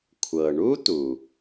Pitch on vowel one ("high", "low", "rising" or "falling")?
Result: low